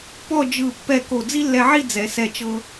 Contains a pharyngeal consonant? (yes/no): yes